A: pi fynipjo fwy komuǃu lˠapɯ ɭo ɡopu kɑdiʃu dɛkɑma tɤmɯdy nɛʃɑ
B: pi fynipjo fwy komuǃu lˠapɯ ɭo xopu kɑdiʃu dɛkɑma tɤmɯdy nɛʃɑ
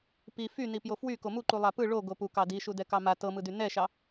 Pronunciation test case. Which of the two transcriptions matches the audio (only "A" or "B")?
A